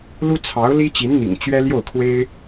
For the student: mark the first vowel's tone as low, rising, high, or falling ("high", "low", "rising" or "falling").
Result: high